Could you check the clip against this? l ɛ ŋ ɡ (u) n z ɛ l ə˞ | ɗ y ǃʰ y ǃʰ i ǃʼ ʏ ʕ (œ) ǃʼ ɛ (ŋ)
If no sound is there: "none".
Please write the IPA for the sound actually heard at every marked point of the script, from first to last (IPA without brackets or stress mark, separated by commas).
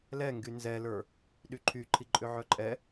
y, œ, none